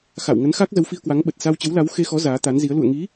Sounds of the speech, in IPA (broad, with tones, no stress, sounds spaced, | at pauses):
x a̰˧˨ w ŋ ə˨˦ n x a˦˥ k̚ z ə˨˦ w f i˧ ə̯ k w a˨˦ ŋ ɓ ə˨˩ t̚ s a˧ w t͡ɕ ə˨˦ w l a˨˦ w x e˧ x ɔ˨˦ z aː˨˦ t̪ a˨˦ n z i˨˦ ə̯ l ṵ˧˨ ə̯ ŋ i˨˦